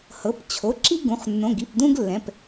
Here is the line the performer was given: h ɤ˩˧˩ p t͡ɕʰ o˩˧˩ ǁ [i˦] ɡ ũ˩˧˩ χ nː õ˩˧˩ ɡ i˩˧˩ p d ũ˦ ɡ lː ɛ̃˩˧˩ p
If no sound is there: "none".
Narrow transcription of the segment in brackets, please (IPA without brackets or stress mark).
i˦